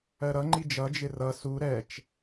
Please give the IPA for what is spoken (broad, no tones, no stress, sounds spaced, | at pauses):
ɜ ɾ ʌ ŋ͡ǃ i d͡ʒ ʌ d͡ʒ ɪ r ʌ s u ɾ ɛ t͡ʃ